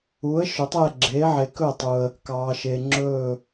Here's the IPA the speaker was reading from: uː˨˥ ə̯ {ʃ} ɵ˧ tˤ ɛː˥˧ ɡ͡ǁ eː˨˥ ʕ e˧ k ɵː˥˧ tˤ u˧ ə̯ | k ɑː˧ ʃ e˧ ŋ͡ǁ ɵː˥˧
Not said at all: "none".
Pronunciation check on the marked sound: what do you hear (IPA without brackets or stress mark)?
ʃ